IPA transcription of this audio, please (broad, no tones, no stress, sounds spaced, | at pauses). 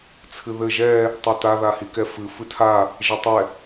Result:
t͡sʰ ɨ ð ɘ ʒ ɛ | tˤ o t a ð a h i k ɛ f ɨ f ɨ tʰ a | ʒ ɘ tˤ ɛ